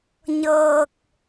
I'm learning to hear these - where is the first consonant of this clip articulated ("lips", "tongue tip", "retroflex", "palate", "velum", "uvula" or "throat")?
palate